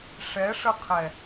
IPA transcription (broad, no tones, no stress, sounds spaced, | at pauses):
ʂ ɛ ʂ ə qʰ ɛ